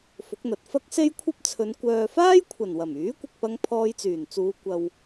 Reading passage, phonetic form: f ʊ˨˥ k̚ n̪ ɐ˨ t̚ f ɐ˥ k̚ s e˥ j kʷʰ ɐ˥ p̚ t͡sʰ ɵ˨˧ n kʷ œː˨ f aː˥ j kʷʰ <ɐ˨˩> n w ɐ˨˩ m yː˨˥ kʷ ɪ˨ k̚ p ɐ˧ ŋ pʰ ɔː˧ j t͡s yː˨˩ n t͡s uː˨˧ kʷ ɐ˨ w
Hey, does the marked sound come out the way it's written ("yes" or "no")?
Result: yes